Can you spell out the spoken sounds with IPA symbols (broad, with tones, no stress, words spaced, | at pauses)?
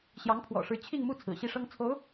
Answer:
ɕjɑ˧˥ŋpʰwɔ̰˨˩ʂɻ̩˧˥ t͡ɕʰi˥˧ŋmu˥˩ t͡sʰɹ̩˨˩ɕi˥˩ʂɤ˥ŋ t͡sʰo˧˥ʊ̯